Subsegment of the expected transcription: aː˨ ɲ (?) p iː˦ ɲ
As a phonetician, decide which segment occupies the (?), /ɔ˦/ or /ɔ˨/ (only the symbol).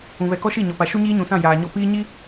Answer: ɔ˦